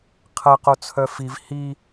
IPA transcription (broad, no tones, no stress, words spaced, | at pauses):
qʰɐ qot͡sʰœfiv hi